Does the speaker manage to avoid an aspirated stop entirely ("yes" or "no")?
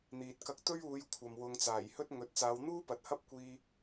no